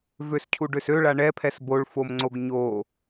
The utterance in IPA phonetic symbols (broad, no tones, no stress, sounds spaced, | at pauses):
v ø s cʰ u ɖ ø s ø ɭ a ɳ ɛ pʰ ɛ s b o ɭ f o m ŋ͡ǀ o ɡ ɲ o